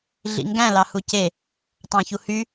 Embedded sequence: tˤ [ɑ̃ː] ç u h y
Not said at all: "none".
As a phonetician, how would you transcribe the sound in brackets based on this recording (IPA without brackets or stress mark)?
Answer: ɑ̃